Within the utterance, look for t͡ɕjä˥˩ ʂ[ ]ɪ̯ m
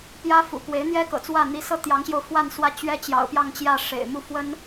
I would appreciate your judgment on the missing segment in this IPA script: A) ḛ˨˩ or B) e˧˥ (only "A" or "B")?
A